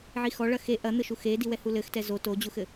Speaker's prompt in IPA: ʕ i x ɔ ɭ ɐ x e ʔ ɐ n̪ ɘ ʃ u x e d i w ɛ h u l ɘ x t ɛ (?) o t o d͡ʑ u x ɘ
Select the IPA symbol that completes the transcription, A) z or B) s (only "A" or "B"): A